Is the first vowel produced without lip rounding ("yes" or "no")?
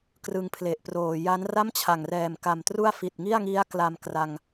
yes